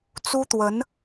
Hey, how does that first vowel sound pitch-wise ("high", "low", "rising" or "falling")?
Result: high